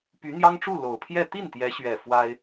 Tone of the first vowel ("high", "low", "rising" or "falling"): rising